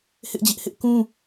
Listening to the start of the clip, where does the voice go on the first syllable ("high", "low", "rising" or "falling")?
high